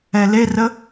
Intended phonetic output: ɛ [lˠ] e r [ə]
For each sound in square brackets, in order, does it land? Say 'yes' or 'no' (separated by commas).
no, yes